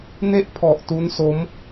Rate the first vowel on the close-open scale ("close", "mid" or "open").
mid